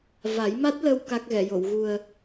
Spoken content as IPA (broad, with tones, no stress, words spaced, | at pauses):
va˨˩˦jma˦˥t̚lə˧w ka˦˥k̚ɣɛ˨˩˨jo˨˩˨w ɣu˨˩ə̯